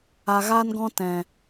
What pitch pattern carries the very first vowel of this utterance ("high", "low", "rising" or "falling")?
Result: low